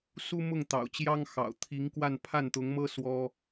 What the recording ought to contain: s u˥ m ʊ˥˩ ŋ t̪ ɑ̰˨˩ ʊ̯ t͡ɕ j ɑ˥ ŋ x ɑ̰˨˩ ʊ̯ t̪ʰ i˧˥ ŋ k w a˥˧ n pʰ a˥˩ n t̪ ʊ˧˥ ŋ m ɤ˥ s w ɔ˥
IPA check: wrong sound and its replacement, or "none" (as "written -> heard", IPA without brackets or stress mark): none